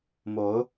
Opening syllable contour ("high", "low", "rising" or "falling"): rising